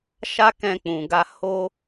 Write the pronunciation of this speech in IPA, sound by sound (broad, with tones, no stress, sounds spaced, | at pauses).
ʃ a˦ k ɛ̃˧ k͡p ũ˨ ɡ a˧ h o˦